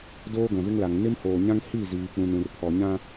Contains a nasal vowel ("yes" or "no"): yes